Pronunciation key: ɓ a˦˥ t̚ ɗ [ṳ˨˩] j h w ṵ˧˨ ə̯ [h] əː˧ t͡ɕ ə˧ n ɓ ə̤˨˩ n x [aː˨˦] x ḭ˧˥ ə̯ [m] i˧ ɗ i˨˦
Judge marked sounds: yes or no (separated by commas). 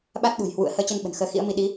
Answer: yes, yes, no, yes